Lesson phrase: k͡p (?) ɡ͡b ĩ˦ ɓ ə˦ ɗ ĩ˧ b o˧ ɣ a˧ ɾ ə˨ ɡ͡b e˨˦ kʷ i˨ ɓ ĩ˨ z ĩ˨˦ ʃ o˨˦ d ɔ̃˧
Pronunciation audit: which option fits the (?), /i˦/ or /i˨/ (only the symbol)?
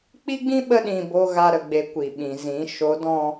i˦